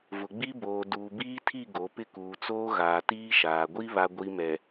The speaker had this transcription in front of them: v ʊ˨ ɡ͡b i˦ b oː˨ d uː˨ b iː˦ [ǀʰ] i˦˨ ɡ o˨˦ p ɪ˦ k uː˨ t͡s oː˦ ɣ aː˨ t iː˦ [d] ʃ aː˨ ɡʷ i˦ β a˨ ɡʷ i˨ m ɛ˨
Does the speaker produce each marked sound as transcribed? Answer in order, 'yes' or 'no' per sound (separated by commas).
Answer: no, no